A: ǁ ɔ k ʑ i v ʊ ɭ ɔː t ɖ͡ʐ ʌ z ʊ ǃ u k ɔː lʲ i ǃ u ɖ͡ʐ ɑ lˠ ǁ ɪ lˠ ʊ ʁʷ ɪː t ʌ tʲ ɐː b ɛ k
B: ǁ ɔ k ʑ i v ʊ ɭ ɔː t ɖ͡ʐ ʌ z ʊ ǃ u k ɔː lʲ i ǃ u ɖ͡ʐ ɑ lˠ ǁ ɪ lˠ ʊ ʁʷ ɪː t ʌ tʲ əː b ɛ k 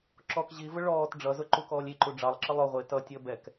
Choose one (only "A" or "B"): B